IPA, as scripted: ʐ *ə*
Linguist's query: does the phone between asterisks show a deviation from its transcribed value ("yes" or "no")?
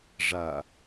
yes